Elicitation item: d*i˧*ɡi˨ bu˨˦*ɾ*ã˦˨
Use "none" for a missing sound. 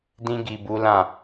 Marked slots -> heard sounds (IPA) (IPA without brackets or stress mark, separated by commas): ĩ˧, l